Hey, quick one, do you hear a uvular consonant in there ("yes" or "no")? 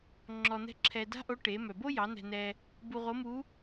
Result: yes